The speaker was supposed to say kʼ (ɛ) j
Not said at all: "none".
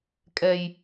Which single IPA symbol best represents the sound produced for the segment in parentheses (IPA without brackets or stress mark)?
ɛ